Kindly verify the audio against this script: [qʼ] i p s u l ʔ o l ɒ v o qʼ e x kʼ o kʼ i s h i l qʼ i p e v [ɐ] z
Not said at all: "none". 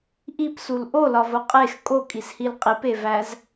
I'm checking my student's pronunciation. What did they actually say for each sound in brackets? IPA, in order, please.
ʔ, æ

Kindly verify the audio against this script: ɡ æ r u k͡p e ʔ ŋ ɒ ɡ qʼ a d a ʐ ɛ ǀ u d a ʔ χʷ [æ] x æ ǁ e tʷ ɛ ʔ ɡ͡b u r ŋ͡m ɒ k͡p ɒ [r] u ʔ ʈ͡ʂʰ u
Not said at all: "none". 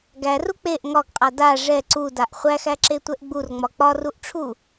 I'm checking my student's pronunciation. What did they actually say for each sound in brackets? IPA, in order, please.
æ, r

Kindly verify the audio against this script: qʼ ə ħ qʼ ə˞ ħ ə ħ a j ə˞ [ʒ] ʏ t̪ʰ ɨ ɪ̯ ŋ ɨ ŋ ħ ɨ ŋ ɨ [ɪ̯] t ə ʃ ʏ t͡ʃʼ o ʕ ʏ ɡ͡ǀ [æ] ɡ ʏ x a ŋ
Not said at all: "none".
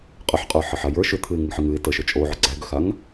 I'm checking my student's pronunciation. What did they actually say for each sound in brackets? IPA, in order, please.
ʃ, ɪ̯, æ

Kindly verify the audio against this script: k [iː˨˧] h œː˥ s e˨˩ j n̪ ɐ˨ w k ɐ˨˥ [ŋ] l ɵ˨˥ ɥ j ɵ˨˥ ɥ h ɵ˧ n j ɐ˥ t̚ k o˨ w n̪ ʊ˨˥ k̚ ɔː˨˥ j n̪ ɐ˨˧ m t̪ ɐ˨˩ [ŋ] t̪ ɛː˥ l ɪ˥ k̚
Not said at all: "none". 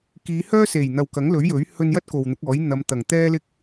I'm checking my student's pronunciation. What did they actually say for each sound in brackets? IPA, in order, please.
iː˨˧, ŋ, ŋ

